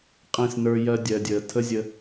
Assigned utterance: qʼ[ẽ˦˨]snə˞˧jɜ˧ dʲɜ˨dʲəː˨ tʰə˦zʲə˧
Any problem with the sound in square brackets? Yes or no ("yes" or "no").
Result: no